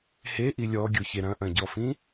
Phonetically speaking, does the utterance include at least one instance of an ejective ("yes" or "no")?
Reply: no